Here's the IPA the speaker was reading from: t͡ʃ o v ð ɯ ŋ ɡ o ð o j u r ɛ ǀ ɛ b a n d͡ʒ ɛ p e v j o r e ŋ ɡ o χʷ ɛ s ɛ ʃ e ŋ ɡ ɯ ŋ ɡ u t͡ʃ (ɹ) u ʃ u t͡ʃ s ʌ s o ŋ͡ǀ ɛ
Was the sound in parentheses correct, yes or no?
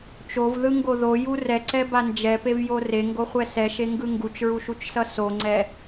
yes